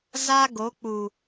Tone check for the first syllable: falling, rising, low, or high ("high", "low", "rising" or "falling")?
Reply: high